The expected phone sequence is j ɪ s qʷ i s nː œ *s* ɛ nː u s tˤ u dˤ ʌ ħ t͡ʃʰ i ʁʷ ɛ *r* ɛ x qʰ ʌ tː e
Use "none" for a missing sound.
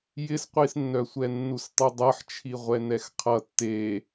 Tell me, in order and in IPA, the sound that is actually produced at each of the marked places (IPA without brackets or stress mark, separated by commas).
sʷ, n